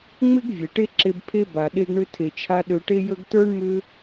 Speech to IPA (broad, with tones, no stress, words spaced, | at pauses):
ŋ͡mɪ˦ɡ vʲe˨ʈe˦ǁe˧b pʰe˧ ba˨ ɗe˧ɡɳʏ˧tʰe˨t͡ʃʰa˧ ɗø˧ʈe˦jə˦ɡ tə˞˦ɳmʏ˦